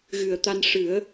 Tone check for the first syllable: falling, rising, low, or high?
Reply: low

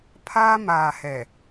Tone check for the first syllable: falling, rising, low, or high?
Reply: high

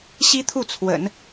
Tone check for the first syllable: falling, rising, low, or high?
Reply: high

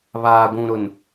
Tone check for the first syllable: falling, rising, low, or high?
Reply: low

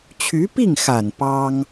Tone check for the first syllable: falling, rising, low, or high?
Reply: rising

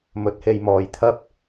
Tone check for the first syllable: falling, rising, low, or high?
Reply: rising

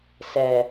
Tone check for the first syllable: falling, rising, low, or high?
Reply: low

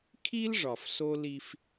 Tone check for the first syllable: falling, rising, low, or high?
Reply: high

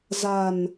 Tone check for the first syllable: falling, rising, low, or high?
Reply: low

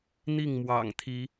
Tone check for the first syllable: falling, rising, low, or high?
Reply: falling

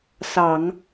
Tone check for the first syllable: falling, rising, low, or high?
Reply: low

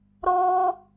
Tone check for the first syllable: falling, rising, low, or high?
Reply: high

